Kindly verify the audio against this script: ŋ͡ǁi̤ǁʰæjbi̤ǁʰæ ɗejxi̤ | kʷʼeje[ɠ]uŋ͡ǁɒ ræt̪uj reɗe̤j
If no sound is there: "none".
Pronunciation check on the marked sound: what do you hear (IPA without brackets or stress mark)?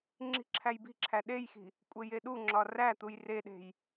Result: ɗ